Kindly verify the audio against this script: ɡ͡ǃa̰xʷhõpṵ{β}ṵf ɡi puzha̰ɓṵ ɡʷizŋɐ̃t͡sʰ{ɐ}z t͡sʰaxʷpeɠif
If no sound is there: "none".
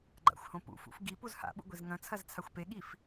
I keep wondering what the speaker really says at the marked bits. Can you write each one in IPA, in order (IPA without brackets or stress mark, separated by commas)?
f, ɐ